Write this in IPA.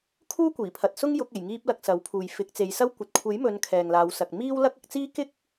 kʰ uː˥ kʷ iː˨˩ pʰ ɐ˨ t̚ s ʊ˥ ŋ j ʊ˨˥ k̚ e˨˩ j ŋ iː˧ p̚ l ɐ˨ k̚ s ɐ˨˥ w pʰ uː˨ j f ɪ˨˥ k̚ t͡s e˨˧ j s ɐ˥ w kʷ ɐ˨ t̚ kʷʰ e˨˥ j m ɵ˨˧ n kʰ ɛː˨ ŋ l aː˨˧ w s ɐ˨ k̚ m iː˥ w l ɐ˥ k̚ ɐ˨˥ k̚ t͡s iː˥ k ɪ˥ k̚

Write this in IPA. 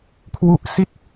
kʰ w u˦˥ ʔ s i˥˩ t̚

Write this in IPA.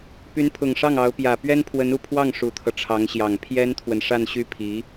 p y˧˥ n pʰ ʊ˨˩ ŋ ʂ ɑ˥˩ ŋ ɑ˧˥ ʊ̯ p j ä˨˩ p ɥ ɛ˥ n pʰ w ə˧˥ n u˨˩ pʰ w ɑ˥˩ ŋ ʂ u˨˩ t̪ʰ ɤ˦ ʈ͡ʂʰ ɑ˧˥ ŋ ɕ j ɑ˨˩ ŋ pʰ j ɛ˥ n t̪ʰ w ə˨ n ʂ a˥˧ n ɕ y˥˩ pʰ i˧˥

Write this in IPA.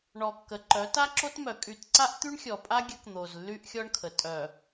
ɳ ɔ˨ kː ə˨ ǃ œ˨˦ t a˦ ǁ o˦ t m œ˨ kʼ y˨ t ǀ a˦ ʔ t̪ y˦ ɳ xʲ ɔ˨ pʼ a˦ ɡʲ ə˦ k n̪ o˨ z lː y˦ ʔ xʲ ɔ˦ ɳ kʰ ə˨ tʼ œ˨

